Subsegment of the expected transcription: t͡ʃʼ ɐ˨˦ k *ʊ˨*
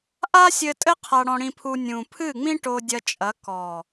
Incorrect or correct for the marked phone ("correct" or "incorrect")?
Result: incorrect